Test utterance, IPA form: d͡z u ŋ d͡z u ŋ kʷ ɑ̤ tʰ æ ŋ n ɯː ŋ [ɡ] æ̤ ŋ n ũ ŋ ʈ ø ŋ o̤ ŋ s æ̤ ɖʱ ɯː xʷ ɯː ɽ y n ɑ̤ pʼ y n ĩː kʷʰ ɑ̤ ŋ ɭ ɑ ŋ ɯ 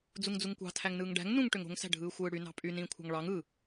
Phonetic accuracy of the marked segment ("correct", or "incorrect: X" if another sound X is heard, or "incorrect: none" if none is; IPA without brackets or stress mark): incorrect: ɖ